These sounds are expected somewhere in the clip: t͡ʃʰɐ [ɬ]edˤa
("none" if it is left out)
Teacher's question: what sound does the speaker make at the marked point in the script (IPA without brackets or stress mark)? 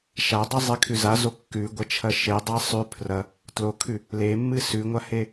ʃ